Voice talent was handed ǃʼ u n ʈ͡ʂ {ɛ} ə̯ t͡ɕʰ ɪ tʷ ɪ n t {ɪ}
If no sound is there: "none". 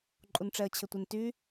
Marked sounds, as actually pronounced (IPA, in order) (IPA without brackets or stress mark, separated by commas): ɛ, y